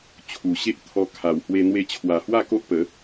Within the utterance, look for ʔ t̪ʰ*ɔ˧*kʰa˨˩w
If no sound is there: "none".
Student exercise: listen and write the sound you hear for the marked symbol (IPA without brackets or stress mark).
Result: ɔ˧